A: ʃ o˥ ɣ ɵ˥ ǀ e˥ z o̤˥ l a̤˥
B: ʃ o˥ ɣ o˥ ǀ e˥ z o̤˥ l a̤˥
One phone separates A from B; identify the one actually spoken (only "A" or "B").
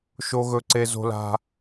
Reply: A